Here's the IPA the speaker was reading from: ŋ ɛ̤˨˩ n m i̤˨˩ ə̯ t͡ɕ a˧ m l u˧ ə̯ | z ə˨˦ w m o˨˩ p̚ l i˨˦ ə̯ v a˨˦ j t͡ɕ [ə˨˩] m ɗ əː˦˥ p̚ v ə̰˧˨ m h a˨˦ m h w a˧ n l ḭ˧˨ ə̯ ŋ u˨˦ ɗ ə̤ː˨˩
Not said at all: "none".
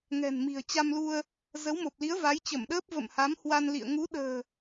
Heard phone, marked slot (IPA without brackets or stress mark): ə˧˩